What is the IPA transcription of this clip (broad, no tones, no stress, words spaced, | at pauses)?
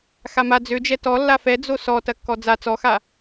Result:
xama d͡zød͡ʒɛ tɔ lːafɛ d͡zosɔ tɐkːɔd͡za t͡sɔxa